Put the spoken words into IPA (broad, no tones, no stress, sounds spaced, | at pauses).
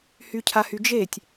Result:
h y cʰ a h y d͡ʒ e tʲ